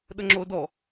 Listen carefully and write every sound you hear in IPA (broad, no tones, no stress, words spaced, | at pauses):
ɗəŋ͡ǁodɔ